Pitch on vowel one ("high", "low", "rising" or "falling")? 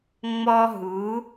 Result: high